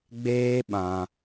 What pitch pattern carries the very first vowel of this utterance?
high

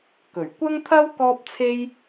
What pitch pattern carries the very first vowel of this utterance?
low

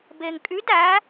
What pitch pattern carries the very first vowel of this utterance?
low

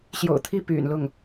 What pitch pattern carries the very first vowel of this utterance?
low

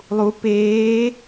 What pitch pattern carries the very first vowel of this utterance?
rising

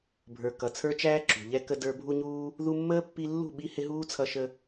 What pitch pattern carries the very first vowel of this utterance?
low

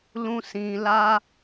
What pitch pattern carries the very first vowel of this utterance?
high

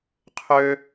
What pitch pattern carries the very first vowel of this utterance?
high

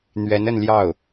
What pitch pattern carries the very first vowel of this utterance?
rising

